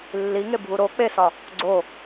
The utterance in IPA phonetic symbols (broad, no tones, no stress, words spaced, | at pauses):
lːiŋe bʱuɾo k͡pesɒ | ɡ͡ǀo